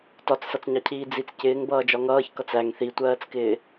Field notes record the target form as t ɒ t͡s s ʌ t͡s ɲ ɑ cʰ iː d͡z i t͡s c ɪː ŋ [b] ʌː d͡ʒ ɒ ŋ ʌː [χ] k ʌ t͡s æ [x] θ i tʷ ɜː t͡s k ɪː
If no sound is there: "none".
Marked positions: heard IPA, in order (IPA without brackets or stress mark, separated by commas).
b, ç, ŋ